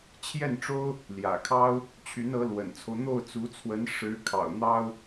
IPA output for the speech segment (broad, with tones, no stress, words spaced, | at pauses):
t͡ɕʰjɛ˥˩nʈ͡ʂo˥ʊ̯ | ljä̰˨˩kʰɑ˥ʊ̯ | t͡ɕʰy˧˥nɤ˧˥lwə̰˨˩nt͡sʰo˦ʊ̯ n̪o˥˩ʊ̯t͡su˧˥t͡sʰwə˧˥n ʂɻ̩˧˥ kʰɑ̰˨˩ʊ̯n̪ɑ˥ʊ̯